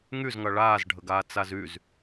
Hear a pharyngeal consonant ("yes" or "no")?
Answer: no